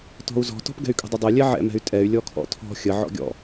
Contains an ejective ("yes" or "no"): yes